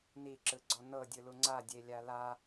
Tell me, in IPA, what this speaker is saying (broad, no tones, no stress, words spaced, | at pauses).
niǁɯɡ͡ǀɔ nɤdʲɯlu ŋ͡ǀadʲelʲa la